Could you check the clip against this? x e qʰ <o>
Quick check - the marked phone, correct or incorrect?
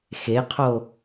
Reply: correct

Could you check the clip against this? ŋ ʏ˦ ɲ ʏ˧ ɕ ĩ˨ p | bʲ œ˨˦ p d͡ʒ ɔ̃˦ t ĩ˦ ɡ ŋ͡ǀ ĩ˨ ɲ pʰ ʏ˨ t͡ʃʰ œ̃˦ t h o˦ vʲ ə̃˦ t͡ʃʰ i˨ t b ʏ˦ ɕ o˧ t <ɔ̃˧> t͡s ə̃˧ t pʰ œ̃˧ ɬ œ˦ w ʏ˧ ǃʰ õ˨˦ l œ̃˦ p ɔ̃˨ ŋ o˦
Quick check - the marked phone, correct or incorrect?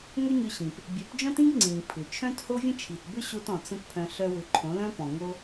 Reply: incorrect: ɔ̃˨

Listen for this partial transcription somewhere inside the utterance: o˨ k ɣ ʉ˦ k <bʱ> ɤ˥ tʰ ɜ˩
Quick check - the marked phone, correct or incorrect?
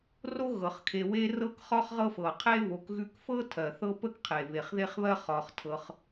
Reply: incorrect: f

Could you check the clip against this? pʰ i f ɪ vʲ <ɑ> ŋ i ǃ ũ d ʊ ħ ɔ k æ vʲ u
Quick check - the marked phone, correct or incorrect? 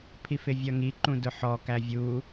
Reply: incorrect: ʌ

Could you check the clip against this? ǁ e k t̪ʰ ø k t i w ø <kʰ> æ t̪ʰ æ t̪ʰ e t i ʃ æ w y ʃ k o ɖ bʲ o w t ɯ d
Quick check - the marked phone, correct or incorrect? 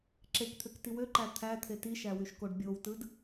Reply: incorrect: ǃ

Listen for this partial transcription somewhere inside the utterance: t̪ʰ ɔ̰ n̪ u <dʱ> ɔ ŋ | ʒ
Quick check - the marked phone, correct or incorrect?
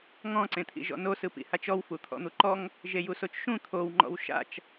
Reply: incorrect: ǃ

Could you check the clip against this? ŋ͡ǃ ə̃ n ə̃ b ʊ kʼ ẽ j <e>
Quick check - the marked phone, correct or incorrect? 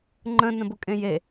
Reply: correct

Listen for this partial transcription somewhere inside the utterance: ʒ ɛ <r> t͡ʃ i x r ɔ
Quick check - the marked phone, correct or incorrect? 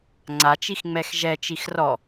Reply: incorrect: none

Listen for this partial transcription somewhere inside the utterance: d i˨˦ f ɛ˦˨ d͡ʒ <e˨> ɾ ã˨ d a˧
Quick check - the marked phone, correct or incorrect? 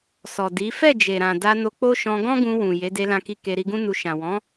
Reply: correct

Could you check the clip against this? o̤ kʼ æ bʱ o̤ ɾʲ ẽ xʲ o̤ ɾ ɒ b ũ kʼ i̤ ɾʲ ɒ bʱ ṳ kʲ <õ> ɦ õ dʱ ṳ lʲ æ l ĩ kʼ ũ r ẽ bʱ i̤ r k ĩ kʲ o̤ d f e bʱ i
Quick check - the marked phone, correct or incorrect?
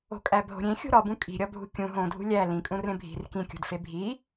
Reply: incorrect: ũ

